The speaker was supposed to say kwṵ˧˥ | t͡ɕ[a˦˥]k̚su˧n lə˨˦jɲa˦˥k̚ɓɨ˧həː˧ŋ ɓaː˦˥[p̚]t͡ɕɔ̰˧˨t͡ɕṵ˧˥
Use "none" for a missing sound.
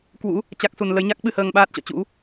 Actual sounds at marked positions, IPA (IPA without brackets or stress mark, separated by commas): a˦˥, t̚